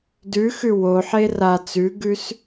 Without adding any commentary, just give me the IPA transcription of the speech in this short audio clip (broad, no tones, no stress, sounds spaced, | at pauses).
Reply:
d ʉ x ʉ w o ħ e r a t͡s ʉ ɡ ʉ s